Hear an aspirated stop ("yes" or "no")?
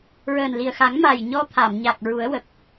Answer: yes